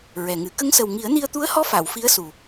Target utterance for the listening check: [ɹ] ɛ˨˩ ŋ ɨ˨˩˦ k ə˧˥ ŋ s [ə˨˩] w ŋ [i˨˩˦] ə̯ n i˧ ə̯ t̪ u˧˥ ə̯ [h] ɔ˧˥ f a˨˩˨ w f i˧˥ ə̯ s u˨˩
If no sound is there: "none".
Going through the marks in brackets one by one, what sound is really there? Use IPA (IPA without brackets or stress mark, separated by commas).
ɹ, ə˨˩, i˨˩˦, h